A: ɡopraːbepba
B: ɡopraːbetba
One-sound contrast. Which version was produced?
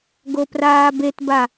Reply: B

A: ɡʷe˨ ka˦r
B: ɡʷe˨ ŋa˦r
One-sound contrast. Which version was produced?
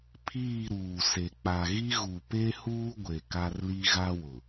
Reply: A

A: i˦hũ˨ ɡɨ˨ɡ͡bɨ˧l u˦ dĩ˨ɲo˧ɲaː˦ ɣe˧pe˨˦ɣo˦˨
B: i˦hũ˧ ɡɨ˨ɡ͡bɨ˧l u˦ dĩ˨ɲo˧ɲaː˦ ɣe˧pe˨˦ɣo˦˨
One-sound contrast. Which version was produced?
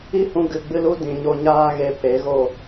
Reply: B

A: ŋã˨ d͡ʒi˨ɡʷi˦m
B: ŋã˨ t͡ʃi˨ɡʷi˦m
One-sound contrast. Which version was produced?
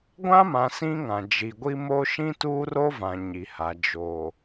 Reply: A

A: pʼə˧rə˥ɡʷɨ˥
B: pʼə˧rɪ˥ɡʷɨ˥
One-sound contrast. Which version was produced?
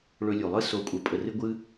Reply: B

